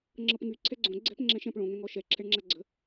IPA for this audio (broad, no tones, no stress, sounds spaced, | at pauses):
ŋ͡ǁ ɤ p ŋ y ǀʰ ɛ ɡ͡ǀ õ ɡ͡ǀ ɛ̤ p ŋ͡ǁ ɛ̃ ʃ ɛ̃ p ɭ õ ŋ ɛ̃ ŋ ɔ ʃ ɛ ǁʰ ɛ ɳ ŋ͡ǁ a ɡ͡ǀ ə̤